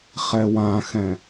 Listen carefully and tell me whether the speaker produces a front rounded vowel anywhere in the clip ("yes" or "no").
no